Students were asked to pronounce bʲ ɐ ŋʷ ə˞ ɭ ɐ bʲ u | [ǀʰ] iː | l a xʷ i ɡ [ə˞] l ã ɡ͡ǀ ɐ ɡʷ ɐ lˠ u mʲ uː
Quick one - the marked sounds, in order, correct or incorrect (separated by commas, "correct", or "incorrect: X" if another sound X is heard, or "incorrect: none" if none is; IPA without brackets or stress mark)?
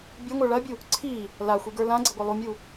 correct, correct